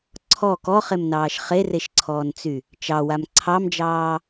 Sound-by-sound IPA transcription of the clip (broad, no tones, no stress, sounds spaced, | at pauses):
ǀʰ ɔ k ɔ χ e m n ɑː ʃ χ e r e ʃ ǀʰ ɔː n t͡s y | t͡ʃ ɑ w a m ǀʰ ɑ m d͡ʒ ɑː